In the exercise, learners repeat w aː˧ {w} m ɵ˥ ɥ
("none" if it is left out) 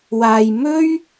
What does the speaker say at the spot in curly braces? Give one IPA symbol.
j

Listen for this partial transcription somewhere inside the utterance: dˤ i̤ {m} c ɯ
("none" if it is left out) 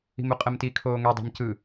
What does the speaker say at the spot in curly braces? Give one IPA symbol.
m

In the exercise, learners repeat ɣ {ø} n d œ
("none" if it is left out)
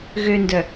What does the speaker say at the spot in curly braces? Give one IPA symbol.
ø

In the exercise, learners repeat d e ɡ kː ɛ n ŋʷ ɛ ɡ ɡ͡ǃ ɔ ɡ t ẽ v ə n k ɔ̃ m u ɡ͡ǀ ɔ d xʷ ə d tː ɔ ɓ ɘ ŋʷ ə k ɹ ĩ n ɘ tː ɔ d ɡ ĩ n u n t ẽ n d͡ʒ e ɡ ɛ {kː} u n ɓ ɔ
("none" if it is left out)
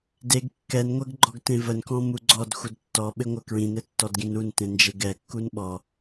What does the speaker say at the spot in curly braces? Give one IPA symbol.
kː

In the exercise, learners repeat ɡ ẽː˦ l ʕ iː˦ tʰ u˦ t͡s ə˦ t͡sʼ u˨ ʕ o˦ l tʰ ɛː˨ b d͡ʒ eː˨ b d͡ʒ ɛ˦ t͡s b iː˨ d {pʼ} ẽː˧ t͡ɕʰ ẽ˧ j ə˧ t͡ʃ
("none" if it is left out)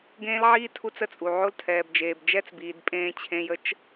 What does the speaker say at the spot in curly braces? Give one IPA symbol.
pʼ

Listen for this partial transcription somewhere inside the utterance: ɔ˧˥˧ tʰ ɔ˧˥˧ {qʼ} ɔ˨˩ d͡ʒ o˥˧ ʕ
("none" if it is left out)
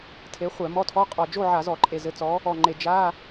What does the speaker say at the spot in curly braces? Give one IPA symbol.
qʼ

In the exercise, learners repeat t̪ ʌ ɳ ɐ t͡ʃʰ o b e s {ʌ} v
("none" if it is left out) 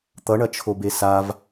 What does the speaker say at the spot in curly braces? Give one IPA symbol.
a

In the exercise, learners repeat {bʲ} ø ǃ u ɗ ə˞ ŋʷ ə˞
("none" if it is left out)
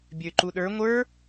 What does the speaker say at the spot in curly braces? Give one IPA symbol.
bʲ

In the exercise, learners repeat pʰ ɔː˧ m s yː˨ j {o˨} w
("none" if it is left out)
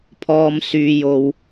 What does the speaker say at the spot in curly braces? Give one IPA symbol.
o˨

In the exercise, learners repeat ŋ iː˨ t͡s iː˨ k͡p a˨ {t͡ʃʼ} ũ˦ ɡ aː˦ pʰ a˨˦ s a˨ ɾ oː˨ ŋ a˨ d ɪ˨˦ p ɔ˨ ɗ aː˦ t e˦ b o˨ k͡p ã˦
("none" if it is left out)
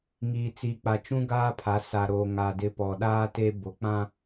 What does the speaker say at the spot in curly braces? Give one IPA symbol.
t͡ʃ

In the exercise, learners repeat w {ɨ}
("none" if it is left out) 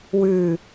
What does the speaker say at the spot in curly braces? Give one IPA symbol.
ʉ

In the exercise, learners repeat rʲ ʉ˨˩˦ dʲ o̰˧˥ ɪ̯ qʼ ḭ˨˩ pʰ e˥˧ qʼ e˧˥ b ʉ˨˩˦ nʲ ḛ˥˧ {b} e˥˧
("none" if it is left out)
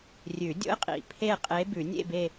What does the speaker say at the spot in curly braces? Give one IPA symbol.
b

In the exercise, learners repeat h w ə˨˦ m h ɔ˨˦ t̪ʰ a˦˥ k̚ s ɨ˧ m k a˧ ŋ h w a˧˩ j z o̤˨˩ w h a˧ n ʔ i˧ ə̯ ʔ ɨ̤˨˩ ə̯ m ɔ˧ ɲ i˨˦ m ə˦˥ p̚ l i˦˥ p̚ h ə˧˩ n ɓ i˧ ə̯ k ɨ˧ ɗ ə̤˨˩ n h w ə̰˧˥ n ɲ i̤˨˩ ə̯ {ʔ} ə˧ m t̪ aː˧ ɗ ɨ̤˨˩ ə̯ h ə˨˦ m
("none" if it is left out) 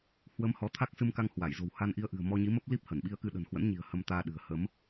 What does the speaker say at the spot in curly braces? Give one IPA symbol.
h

